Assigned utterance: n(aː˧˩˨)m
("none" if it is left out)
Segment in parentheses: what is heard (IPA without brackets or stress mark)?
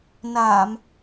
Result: aː˧˩˨